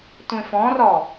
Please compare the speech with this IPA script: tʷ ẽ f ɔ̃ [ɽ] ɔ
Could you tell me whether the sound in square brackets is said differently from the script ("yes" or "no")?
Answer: yes